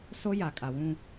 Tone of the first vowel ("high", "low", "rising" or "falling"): high